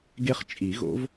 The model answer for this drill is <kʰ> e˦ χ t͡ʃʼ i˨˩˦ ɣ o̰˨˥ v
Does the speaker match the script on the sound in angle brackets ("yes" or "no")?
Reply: no